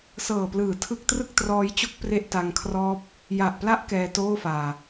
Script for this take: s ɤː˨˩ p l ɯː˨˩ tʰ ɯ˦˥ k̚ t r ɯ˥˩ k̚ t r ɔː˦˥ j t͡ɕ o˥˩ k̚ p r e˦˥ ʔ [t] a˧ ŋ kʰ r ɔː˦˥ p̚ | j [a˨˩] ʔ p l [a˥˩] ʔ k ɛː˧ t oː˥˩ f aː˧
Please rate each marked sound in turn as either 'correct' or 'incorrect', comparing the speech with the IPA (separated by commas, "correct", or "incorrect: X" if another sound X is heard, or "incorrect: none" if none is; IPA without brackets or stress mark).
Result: correct, correct, incorrect: a˦˥